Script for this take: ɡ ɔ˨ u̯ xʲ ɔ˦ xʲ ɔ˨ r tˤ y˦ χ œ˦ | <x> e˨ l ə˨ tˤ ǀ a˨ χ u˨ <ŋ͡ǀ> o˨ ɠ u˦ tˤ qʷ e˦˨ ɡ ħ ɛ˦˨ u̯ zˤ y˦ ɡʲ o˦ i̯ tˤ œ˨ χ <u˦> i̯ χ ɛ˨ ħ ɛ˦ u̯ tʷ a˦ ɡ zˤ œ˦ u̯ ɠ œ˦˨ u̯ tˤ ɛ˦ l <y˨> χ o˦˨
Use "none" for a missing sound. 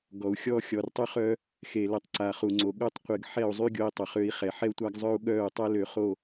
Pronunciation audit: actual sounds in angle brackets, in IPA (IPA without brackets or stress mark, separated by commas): x, ŋ͡ǀ, ø˦, ø˨